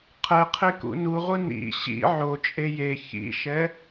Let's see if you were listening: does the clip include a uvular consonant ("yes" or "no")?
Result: yes